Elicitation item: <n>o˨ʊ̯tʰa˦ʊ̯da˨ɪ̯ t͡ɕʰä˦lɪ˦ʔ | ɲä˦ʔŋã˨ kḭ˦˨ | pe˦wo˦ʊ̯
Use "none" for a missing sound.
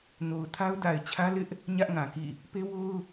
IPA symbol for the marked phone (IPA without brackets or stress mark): n